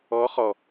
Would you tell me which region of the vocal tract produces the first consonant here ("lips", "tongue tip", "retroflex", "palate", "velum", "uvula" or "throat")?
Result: uvula